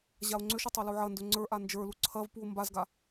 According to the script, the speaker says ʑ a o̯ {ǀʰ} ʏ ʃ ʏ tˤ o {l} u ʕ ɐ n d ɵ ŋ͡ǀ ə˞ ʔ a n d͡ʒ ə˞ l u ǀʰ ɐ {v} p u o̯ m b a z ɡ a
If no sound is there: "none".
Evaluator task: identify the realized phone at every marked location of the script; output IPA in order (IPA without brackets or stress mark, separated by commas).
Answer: ŋ͡ǀ, l, v